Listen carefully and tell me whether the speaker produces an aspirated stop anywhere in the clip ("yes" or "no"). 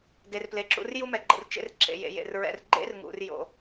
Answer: no